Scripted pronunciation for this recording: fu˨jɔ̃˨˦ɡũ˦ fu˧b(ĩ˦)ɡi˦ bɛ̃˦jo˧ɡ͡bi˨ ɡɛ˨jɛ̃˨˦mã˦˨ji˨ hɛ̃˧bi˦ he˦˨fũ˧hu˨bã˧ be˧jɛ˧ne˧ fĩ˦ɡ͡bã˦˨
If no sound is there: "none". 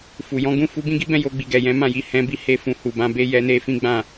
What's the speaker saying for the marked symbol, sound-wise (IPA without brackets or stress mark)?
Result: ĩ˦